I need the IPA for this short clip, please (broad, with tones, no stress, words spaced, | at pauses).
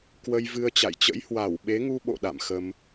kwə˧jvɨ˧ə̯t͡ɕa̰˧˨jt͡ɕə̰˧˥j hwa˧˩w ɓe˨˦ŋu˧ ɓo̰˧˨ ɗa̰˧˨mxə˧m